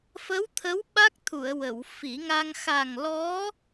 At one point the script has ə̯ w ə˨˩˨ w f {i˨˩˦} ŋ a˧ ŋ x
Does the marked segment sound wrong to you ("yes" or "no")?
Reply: no